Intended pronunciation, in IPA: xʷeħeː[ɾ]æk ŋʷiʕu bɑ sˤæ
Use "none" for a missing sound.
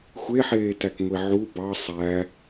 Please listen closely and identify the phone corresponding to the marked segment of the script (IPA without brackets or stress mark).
t